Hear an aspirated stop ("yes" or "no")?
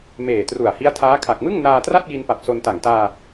yes